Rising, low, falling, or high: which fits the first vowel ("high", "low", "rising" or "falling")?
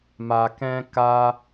low